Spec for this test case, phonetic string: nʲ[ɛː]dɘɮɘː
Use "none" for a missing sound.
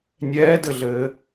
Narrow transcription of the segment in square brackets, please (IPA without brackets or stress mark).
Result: ɛː